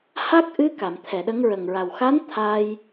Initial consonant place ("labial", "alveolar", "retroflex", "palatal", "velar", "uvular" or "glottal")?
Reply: glottal